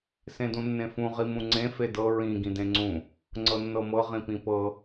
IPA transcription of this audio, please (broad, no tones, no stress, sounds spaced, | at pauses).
s ẽ d ũ nː ẽ f ũ ʁ i m ũ ŋ͡ǀ ẽ f e d ɤ ɹ ĩ ɡ ĩ d ẽ ŋ͡ǀ ũ | ŋ͡ǀ ɤ nː ɤ m ɤ ʁ ĩ p ĩ p ɤ